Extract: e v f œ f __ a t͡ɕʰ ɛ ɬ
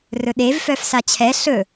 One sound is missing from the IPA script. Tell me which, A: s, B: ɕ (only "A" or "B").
A